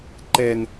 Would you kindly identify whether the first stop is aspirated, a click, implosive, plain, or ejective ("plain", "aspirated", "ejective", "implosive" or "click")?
click